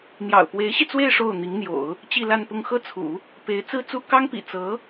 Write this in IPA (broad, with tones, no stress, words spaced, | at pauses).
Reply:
n̪jɑ̰˨˩ʊ̯pwe˧˥ɪ̯ɕi˧t͡swe˥˧ɪ̯ ʂo˥˩ʊ̯n̪i˧˥ŋn̪jo̰˨˩˦ʊ̯ | t͡ɕi˥˧la˥˧npʊ˥˧ŋ xɤ˥˩t͡sʰṵ˨˩˦ | pe˧˥ɪ̯ t͡sɹ̩˥t͡su˥ kɑ˥ŋpḭ˨˩ t͡sɤ˧˥